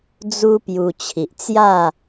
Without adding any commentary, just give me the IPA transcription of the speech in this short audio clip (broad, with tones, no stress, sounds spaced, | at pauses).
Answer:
d͡z u˦ p j u˧ t͡ɕʰ i˨ ʔ t͡s j a˥˧